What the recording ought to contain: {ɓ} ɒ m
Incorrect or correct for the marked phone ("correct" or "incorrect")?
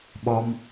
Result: correct